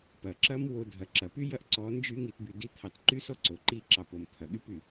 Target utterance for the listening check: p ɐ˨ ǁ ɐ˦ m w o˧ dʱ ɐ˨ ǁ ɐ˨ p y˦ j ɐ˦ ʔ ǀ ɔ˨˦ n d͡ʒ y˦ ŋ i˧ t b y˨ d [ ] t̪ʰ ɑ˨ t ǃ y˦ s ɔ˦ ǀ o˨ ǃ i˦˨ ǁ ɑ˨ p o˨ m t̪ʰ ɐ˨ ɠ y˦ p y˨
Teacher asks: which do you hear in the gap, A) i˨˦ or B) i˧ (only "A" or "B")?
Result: A